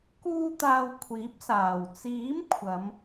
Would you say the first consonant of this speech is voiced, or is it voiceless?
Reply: voiceless